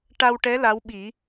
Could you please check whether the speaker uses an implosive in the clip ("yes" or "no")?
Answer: yes